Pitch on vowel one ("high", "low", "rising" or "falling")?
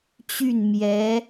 falling